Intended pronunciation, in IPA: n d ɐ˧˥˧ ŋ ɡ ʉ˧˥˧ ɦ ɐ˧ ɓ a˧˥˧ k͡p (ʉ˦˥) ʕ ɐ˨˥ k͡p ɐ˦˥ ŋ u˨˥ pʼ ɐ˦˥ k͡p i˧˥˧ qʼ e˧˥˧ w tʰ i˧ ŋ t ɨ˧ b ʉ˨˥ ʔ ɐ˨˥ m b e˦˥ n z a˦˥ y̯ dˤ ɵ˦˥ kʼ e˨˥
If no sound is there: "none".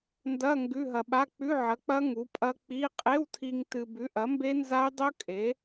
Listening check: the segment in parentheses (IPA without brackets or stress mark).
ʉ˧˥˧